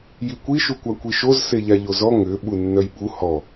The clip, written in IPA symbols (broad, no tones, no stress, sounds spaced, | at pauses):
j i kʷ i ʃ u kʷ a kʷ i ʃ o z s e ʎ a ʎ o z ɔ ŋ ʏ ɓ u nː œ j ɓ u h ɔ